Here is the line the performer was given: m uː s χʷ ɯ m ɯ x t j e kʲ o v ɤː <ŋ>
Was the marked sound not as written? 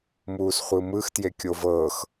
yes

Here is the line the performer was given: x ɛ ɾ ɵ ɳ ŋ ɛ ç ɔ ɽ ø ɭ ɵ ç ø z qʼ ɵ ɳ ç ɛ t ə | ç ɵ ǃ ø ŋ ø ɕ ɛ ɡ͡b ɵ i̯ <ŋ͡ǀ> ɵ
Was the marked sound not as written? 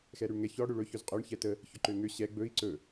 yes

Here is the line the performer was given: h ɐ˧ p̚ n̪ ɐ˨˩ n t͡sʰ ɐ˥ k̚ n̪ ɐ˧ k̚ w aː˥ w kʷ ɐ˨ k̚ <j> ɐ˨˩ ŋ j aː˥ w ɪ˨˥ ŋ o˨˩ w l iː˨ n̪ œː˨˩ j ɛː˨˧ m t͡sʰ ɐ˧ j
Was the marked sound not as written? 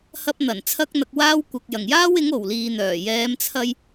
no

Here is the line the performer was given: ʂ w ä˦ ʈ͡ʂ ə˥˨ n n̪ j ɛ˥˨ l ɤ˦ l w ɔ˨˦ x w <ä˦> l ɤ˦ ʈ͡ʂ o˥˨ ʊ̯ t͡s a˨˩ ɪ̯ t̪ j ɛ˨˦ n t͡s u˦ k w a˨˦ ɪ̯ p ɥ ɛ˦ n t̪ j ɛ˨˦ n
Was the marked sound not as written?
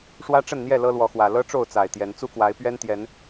yes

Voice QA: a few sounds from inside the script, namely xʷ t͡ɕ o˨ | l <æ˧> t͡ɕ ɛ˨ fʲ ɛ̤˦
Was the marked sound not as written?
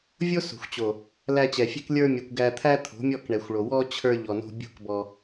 no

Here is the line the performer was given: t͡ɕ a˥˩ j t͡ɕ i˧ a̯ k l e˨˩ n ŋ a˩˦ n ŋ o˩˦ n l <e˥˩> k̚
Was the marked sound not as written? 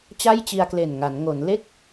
no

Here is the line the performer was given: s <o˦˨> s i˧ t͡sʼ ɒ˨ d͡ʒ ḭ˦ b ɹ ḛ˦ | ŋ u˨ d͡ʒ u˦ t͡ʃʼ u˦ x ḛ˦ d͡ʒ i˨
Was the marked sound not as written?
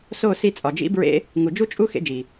no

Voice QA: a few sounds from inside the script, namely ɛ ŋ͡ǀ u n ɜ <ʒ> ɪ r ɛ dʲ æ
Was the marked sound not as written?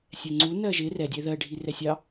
no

